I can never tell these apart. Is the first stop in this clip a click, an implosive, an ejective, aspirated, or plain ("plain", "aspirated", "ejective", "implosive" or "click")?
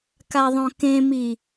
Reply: plain